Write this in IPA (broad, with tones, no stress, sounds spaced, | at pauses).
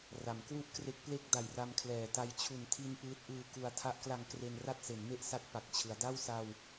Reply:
r a˩˦ m k w u˥˩ ʔ k r e˦˥ k̚ p l e˥˩ k̚ d a˨˩ j r a˧ m kʰ l ɛː˨˩ t a˧ j t͡ɕʰ u˨˩ n tʰ i˧ n p ɯː˦˥ t̚ ʔ ɯː˧ k u˧ a̯ tʰ a˦˥ ʔ k l a˧ ŋ k r e˧ n r a˥˩ t̚ s e˩˦ n m e˥˩ ʔ s a˥˩ t̚ p a˨˩ k̚ t͡ɕʰ ɯ˩˦ a̯ d a˥˩ w s a˧ w